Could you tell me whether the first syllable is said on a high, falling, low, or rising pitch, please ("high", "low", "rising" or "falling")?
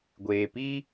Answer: low